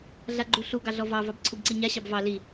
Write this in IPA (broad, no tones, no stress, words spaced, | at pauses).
ɮaɡ͡ǃuɬu ɡɑɮɔvɑ vɑbǀʰubǀiɲa ɕɑbvɑ li